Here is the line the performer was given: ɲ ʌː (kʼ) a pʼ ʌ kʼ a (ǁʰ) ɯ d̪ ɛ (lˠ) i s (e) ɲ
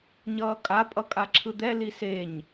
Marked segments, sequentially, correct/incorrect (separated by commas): correct, correct, incorrect, correct